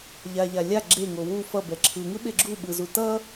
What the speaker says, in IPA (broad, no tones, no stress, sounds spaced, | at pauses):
ʎ a ʎ a lʲ a ɡ͡ǁ e ŋ o w u f ʌ b ɛ ǁʰ ɯ ŋ ɯ ɓ e ɡ͡ǁ u ɓ ɯ z u t ʌ